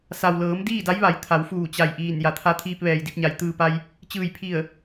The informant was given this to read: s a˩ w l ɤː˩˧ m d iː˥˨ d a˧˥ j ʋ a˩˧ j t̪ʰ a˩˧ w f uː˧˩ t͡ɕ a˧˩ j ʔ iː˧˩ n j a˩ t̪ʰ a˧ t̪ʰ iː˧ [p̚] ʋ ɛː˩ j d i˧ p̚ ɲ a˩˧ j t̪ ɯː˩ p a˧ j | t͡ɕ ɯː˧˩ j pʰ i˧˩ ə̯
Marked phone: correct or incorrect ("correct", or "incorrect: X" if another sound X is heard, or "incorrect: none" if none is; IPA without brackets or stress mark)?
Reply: correct